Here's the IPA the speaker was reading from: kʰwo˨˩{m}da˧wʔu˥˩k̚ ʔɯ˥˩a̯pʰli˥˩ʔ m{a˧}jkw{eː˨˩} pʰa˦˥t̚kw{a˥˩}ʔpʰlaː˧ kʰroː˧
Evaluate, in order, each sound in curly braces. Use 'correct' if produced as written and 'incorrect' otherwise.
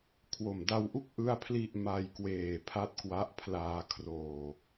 correct, correct, correct, incorrect

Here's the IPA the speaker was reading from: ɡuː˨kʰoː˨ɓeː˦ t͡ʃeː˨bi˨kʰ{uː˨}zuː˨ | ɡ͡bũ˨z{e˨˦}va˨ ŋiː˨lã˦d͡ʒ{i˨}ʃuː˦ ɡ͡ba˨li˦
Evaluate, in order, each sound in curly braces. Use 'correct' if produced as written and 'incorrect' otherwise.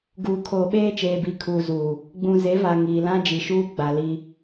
correct, correct, correct

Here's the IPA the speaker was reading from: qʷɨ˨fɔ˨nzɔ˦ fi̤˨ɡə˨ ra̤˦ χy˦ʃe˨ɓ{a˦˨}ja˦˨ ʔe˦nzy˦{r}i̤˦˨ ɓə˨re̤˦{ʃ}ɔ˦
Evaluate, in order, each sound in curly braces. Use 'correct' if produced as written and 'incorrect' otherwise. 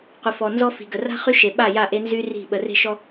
correct, correct, correct

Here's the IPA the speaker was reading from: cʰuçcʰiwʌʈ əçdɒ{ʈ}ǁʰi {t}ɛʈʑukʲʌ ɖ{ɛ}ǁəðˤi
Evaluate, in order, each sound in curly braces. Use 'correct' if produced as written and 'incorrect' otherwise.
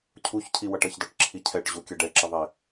correct, incorrect, correct

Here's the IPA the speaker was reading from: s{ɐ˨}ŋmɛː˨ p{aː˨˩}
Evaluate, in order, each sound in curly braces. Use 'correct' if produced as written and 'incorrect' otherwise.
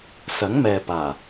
incorrect, correct

